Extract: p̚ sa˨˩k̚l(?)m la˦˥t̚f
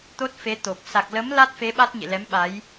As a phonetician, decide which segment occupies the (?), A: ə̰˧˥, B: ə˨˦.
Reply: B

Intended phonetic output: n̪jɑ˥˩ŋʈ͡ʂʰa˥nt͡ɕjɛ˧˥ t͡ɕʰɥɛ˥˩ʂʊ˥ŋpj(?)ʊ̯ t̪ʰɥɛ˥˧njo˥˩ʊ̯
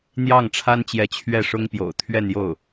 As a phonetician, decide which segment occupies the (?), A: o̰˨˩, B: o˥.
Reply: A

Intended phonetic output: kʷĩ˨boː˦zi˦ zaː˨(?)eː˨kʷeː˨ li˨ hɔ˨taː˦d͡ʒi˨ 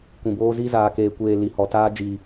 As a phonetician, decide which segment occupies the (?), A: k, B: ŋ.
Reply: A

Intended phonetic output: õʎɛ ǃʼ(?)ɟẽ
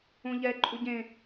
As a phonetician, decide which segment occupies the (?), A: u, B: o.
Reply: A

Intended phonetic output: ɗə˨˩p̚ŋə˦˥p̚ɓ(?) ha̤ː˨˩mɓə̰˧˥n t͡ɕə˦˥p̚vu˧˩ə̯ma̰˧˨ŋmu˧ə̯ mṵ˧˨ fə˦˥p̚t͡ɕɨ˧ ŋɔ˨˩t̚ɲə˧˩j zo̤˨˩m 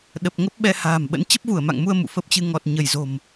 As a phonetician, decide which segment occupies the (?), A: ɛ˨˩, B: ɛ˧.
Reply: B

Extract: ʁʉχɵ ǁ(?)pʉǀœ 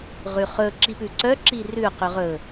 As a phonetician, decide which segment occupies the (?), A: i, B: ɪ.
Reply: A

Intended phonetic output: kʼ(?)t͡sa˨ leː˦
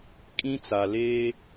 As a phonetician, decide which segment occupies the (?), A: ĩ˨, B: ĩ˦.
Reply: B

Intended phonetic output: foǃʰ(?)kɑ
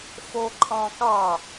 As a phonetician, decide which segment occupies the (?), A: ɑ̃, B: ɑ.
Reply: A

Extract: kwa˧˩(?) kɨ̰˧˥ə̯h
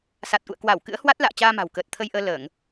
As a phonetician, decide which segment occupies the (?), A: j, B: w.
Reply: B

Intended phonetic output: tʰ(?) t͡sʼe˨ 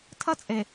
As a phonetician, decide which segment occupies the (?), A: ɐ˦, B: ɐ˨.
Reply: A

